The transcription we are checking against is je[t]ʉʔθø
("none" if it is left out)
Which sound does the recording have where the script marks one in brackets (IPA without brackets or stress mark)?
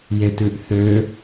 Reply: t